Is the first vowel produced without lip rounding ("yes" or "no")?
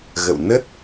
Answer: yes